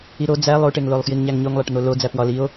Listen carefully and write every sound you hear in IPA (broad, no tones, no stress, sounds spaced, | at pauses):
i ɾ o d͡z æ lˠ o ʈ e ŋ l o lˠ f j i ŋ ɲ æ ŋ ɲ o ŋ lˠ æ ʈ n̪ o l o d͡z æ p w ɒ l i o̯